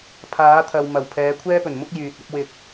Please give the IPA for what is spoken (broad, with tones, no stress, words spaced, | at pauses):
pʰaː˨˥t̪ʰɐ˨w mɐ˨˩w pʰɛː˨˧kʷʰɛː˥pɵ˨˩nmʊ˥k̚ jyː˨t̚ɐ˥p̚wɪ˧k̚